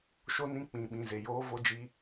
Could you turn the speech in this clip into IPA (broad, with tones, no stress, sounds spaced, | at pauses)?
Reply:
ʃ o˦ n ĩ˦ k͡p ĩ˨ ɓ ĩ˨ z e˨ j oː˦ v o˦ d͡ʒ i˦